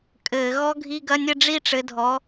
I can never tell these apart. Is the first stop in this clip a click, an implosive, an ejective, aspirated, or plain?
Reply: ejective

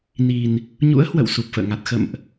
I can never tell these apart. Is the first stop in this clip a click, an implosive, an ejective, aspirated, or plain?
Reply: plain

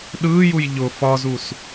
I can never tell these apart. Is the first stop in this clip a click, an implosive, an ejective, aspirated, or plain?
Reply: implosive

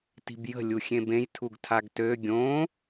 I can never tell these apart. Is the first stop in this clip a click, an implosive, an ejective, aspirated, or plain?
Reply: plain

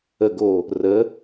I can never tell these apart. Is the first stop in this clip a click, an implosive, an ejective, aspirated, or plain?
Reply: plain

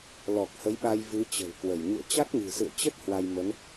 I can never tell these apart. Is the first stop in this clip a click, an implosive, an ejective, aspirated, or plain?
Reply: plain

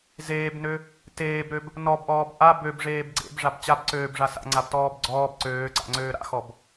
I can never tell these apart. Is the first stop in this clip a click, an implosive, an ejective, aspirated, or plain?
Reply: plain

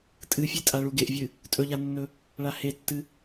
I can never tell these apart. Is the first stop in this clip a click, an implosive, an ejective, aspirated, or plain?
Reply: ejective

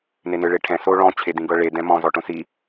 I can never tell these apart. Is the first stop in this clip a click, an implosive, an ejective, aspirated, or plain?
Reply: aspirated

